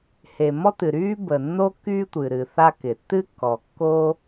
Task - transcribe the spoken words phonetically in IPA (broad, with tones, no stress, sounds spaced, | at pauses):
h e˩ m ɔ˦ t ɨ˩ ɾ yː˦ b ə˩ nː o˦ k yː˦ tʷ ɨ˩ ɾ ɨː˩ θ a˦ k ɪ˩ tː ɨ˦ kː ɔ˩ kː o˦